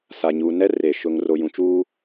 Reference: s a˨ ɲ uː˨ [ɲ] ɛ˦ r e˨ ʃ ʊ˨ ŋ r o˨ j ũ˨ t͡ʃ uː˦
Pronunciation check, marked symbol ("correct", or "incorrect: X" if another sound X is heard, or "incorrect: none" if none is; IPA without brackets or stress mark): incorrect: n